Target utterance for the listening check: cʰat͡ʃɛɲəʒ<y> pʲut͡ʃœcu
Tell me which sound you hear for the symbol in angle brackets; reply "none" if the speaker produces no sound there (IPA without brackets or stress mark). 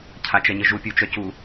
u